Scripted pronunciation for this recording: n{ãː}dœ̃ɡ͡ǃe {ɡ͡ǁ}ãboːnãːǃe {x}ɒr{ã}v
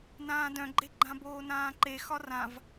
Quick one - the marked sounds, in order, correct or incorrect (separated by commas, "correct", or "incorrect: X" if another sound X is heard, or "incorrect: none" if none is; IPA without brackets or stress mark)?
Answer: correct, incorrect: ɡ͡ǃ, correct, correct